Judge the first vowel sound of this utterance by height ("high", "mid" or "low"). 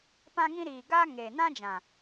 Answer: low